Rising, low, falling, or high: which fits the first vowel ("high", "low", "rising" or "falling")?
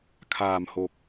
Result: low